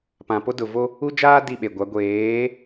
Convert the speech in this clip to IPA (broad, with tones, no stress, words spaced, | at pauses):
pã˨po˦ dʊ˨vo˦ | u˦d͡ʒaː˦ di˦˨ɓe˨ɡʷa˨˦ ɡʷeː˨˦